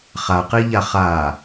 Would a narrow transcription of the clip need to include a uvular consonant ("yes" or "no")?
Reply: yes